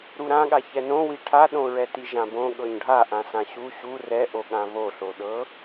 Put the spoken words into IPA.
ɾuɾãɠa çɛnõwi ʈʰaɗõɹɛti ʒãbõ ɠɤɲɖʱaʔãsã ɕu ɕu rɛʔoɠã βoɬoɗɤ

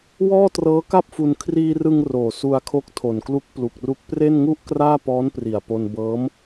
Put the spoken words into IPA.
wɔː˥˩trɤː˦˥ka˥˩p̚fu˧n kʰriː˧ rɯ˧ŋ roː˩˦su˧a̯kʰo˦˥k̚ tʰo˨˩nklu˦˥k̚plu˨˩k̚ru˦˥k̚ pre˥˩nŋu˥˩ʔ kraː˥˩pɔː˦˥npri˨˩a̯po˧n bɤː˦˥m

